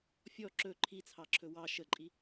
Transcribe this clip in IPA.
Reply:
fʲ ɔ ǁ ɵ ǃʰ i t͡sʰ ɑ ǁʰ ɵ w ɑ ʃ ə ǃʼ i

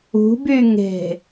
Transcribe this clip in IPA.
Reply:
ṳ b y ŋ e̤

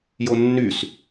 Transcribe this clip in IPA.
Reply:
j o nː y s

